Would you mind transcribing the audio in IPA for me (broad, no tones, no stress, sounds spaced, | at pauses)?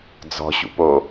d͡z ɔ̤ ɕ ṵ p o